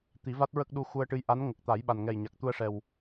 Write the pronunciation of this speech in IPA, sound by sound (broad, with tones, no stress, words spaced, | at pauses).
t̪i˨˩˦va˦˥t̚ɹə˦˥k̚ɗu˧ xu˧ə̯ʈɨ˧˥jʔa˧˥n ŋə˨˩k̚t̪a˨˩˦jɓa˨˩nŋɛ˨˩j ɲa˨˩k̚t̪u˧ə̯ʂɛ˨˩w